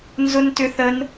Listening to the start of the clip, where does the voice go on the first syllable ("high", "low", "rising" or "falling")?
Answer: high